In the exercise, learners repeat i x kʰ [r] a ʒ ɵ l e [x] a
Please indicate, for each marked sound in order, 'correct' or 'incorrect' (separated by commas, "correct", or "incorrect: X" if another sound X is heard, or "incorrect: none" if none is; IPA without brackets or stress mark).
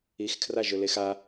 correct, correct